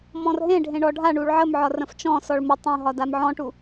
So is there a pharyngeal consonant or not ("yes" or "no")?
yes